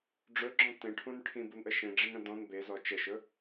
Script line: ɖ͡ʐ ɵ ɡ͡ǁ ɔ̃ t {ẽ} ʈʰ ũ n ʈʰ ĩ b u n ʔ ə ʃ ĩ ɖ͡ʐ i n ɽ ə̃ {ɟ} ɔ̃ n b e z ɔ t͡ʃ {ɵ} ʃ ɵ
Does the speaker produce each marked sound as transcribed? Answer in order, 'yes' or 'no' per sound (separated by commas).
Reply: yes, no, no